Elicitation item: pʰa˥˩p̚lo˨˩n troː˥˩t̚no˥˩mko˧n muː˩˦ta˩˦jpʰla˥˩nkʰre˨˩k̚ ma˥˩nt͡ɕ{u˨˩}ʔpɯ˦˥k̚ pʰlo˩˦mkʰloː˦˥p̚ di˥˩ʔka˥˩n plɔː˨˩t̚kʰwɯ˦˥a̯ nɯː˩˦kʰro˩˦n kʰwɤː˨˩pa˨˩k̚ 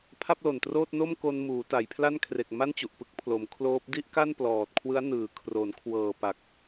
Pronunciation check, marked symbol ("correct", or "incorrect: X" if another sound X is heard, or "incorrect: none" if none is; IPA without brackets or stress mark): correct